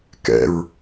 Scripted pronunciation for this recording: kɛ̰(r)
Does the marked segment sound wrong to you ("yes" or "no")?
yes